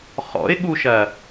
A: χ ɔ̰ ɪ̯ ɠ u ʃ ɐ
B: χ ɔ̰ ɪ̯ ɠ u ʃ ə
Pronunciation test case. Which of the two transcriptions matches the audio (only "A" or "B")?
A